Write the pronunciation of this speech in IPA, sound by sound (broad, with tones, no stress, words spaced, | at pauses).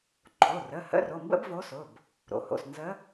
ǃʰo˩˧˩rə˩˧˩ hə̰˧˥ro˩˧˩mbə̰˥b vo˧˥sʊ˩˧˩b | ɾo̰˩ho̰˩˧˩s nzə˧˥